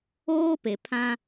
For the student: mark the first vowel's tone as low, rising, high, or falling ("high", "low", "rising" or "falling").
high